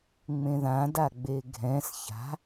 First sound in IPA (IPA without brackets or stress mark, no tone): ŋ͡m